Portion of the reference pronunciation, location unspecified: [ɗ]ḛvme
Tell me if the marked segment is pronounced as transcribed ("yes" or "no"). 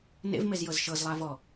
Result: no